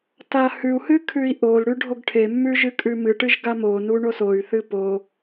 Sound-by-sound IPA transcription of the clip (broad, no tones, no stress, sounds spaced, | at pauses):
t a h ʉ u̯ h ɨ kʰ ʉ i̯ ʔ o l ɽ ʉ ɖʱ o ɡ ʈʰ e mː ʉ ʒ ɨ kʼ ʉ m ɨ ʈ ɨ ʒ ɡ a m o n u ɳ o s o y̯ θ ɨ p o